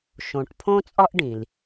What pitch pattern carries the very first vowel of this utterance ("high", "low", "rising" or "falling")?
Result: low